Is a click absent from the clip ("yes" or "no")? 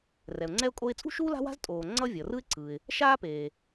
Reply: no